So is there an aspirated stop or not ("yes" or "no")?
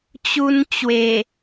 no